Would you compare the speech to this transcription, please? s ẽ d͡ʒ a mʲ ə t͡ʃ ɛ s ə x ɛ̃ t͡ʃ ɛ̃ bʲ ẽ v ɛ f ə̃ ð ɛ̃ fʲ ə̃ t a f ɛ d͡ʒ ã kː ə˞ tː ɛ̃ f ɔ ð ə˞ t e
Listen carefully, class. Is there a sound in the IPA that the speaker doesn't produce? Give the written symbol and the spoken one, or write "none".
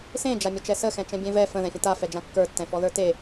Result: none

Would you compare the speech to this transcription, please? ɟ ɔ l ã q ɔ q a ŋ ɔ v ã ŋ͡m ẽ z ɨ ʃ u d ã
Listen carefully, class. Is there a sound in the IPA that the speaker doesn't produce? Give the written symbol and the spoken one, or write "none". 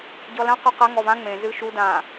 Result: none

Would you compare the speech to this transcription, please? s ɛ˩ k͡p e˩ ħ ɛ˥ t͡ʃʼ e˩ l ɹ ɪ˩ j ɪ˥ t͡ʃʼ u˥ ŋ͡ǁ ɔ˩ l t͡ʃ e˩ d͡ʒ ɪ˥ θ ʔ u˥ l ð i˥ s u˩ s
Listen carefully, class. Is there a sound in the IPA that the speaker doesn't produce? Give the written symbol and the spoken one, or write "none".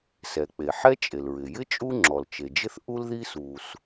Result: none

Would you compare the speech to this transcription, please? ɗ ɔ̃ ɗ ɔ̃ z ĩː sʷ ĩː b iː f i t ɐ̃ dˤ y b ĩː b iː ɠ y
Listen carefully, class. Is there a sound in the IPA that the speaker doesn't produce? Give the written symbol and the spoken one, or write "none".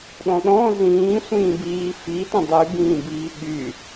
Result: none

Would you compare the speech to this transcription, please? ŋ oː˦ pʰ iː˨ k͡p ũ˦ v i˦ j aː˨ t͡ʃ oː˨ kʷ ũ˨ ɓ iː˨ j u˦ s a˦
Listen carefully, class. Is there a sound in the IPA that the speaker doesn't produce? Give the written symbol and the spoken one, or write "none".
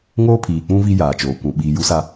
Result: none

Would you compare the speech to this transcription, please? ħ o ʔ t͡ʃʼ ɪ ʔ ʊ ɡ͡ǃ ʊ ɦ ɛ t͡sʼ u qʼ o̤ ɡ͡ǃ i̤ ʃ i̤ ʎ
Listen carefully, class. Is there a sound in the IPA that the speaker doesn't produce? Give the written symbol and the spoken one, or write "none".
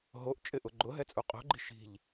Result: ħ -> ɦ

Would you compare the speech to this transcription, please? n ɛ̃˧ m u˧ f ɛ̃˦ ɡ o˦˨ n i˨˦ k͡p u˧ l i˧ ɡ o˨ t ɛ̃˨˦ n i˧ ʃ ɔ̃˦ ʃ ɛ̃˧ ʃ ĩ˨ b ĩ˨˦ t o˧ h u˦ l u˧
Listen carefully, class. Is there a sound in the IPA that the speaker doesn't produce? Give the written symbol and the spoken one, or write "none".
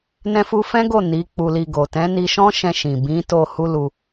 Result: m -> f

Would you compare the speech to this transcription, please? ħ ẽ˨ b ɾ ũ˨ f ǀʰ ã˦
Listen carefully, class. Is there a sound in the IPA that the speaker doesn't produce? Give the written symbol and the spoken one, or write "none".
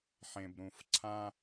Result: none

